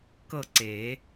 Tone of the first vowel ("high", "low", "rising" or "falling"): falling